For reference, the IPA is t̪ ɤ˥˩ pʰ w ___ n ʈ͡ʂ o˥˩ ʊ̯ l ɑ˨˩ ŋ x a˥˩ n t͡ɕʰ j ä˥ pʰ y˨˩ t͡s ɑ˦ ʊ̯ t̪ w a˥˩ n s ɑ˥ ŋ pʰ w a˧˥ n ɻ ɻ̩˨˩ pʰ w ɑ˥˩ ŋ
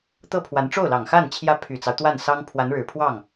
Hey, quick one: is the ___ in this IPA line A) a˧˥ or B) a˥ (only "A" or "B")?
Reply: A